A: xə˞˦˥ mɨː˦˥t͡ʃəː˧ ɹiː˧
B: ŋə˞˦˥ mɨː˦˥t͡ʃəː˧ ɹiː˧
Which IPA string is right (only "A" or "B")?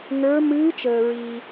B